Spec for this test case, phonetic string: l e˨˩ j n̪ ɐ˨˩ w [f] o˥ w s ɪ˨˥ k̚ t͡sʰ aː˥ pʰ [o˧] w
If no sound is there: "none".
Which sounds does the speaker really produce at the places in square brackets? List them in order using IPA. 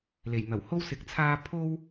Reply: h, o˥

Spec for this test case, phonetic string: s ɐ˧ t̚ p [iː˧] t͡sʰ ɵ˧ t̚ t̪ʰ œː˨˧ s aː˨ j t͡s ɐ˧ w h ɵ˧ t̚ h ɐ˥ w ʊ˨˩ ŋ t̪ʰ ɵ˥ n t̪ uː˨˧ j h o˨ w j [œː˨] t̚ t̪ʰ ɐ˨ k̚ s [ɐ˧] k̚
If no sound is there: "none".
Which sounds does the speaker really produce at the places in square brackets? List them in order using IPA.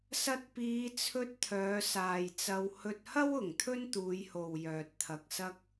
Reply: iː˨˧, œː˨, ɐ˧

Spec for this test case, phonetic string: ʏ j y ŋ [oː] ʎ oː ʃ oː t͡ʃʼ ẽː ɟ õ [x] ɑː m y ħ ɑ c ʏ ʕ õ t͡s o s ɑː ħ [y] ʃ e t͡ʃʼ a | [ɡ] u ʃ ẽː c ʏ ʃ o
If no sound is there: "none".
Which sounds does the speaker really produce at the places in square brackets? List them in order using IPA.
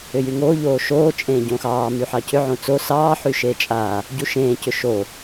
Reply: oː, x, y, ɟ

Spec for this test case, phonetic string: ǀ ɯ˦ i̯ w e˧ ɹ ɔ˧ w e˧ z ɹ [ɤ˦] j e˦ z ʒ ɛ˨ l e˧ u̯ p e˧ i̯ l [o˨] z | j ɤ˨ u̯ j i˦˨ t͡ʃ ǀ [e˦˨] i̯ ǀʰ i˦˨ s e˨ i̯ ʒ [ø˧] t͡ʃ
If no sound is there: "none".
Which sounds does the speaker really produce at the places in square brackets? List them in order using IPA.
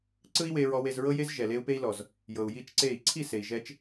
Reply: ɤ˦, ɔ˨, e˦˨, ɛ˧

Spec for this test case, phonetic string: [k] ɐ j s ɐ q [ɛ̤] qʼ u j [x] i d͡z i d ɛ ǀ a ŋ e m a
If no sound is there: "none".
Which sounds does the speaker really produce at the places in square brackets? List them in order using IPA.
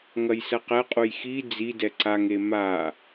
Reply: ŋ, ɛ, x

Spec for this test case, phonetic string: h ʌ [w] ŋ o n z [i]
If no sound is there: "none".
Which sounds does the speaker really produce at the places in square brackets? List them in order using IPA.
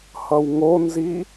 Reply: w, i

